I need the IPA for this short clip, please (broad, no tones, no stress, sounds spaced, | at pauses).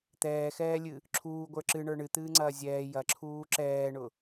t̪ ɛː x ɛː lʲ ɨ | ǁʰ uː ɡʷ ə˞ ǁ ɨ ɳ ə˞ ɳ ɨ t̪ ɨː ŋ͡ǀ ɐː zʲ ɛː j ɐ ǁʰ uː ǁ ɛː ɳ ʊ